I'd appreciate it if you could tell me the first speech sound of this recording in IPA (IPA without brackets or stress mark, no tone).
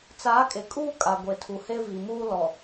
t͡s